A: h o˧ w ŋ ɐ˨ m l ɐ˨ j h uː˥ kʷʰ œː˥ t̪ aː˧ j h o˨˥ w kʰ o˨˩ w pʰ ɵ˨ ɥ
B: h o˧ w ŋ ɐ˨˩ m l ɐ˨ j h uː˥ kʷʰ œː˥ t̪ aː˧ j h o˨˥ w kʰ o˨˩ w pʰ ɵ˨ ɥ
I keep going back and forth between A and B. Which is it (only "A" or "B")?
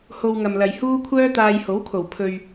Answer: A